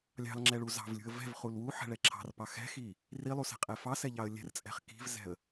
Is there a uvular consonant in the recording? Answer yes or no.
yes